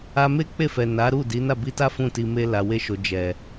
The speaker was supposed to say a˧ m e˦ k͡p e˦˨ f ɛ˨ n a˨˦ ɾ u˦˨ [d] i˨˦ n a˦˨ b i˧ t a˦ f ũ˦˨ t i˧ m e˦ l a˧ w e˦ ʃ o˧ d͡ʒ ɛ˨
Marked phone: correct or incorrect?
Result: correct